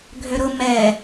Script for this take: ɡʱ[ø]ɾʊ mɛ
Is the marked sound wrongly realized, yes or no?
no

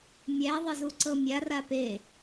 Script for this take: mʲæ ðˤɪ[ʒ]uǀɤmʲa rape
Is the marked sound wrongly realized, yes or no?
yes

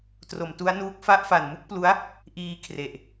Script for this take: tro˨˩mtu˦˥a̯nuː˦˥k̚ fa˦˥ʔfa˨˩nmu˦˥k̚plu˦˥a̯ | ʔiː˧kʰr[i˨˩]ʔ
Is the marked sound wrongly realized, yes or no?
yes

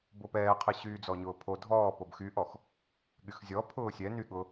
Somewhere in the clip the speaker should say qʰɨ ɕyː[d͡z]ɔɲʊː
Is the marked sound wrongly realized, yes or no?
no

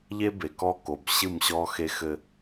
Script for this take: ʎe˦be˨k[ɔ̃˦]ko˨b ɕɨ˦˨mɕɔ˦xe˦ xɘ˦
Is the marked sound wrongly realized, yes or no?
yes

